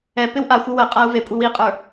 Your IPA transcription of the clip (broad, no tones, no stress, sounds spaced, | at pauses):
ɛ p ɪ w ʔ a xʷ ɪ w ə qʼ a u̯ v e kʷʼ i w i qʼ ə˞